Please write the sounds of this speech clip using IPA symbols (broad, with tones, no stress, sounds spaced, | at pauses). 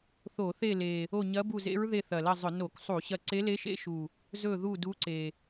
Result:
θ o˧˩˧ θ e˦˨ l e˨˩ | o˦˨ ɲ ɐ˧˥ b u˦˨ z ḛ˧˥ ɹ ð e˦˨ θ ɐ˨˩ l ɐ˦˨ zˤ ɵ˧˩˧ n o˧˩˧ k sˤ u˧˩˧ ɕ ɐ˦˨ ǀ e˧˥ l e˧˥ ʃ ḛ˧˥ ʃ u˨˩ | z ɵ˦˨ ð u˦˨ d u˧˥ ǀ e˨˩